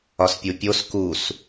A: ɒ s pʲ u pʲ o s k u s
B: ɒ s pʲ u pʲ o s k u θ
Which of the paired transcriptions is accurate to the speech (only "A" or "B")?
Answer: A